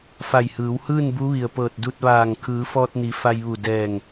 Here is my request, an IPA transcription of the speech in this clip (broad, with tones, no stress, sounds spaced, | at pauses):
f a˧˩ j h ɯː˩˧ w h ɯː˥˨ n b u˧˥ ʋ i˩ ə̯ p ɤː˧˩ t̚ d u˧ t̚ ʋ aː˧˩ ŋ kʰ ɯː˩˧ f ɔː˧ t̚ n i˩˧ f a˧ j ʋ u˧˩ d ɛː˧˩ ŋ